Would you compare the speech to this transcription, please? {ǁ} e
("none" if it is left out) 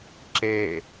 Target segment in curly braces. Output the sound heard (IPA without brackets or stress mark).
ǁ